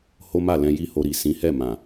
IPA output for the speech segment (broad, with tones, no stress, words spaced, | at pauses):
ho˦ma˦˨lɛ̃˧ ji˦ho˧ ɾi˨sĩ˨˦hɛ˦˨ mã˨